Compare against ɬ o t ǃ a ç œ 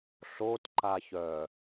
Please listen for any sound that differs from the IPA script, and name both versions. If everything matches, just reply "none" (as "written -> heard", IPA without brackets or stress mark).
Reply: none